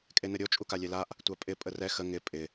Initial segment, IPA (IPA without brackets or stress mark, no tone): kʼ